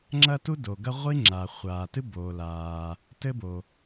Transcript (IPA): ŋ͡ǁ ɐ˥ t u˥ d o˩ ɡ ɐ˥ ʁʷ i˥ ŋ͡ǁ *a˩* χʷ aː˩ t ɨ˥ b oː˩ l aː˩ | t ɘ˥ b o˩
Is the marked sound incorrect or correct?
correct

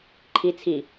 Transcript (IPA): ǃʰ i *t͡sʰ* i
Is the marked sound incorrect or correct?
correct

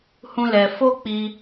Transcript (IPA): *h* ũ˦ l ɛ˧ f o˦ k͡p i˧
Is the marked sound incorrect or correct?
correct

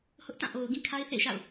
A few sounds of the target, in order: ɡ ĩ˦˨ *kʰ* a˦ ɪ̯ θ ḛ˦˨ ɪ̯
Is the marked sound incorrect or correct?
correct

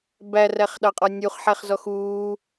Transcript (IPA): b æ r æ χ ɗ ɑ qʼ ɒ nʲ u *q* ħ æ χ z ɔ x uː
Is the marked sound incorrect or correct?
incorrect: χ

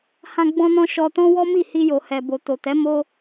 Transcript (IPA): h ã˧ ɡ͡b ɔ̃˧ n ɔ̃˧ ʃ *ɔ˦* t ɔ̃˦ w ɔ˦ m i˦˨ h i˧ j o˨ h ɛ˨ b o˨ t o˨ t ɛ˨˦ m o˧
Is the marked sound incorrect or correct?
incorrect: ɔ˧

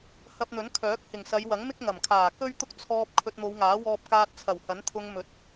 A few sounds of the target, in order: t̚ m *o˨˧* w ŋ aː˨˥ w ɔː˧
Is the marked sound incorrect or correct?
correct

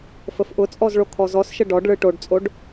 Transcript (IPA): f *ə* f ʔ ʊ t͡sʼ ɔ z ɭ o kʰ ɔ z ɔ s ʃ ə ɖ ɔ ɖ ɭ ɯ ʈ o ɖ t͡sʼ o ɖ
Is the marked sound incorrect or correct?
correct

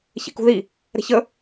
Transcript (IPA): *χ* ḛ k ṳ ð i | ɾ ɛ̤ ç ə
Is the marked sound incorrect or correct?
incorrect: ç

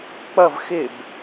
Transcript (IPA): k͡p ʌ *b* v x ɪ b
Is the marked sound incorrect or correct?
incorrect: none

